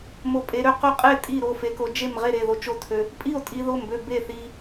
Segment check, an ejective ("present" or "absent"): present